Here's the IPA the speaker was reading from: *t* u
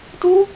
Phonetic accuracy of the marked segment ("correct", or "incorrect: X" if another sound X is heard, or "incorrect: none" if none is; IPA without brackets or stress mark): correct